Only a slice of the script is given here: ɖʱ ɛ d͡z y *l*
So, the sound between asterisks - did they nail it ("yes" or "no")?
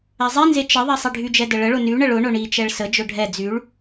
no